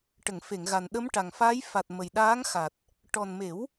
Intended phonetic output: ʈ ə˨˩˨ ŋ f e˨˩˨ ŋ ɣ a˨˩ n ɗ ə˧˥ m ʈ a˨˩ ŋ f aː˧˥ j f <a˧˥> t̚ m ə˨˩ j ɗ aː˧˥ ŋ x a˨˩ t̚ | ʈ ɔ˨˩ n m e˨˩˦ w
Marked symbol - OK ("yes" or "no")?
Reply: no